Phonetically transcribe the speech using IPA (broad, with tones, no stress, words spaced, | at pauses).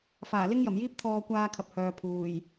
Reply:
faː˨˩lɪ˥ŋjɐ˨˩mjiː˥p̚ t̪ʰɔː˧kʷaː˧kʰɐ˨p̚ hœː˨pʰuː˨˩j